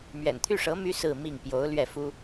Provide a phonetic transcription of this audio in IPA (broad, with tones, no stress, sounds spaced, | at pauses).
m ɥ ɛ̰˨˩ n t̪ʰ y˥˩ ʂ ɤ˧˥ m y˥ s ɹ̩˥˧ m i˥˩ ŋ p j o˧˥ ʊ̯ l ɥ ɛ˥˩ f u˥